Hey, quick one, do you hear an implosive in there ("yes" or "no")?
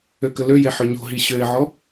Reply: no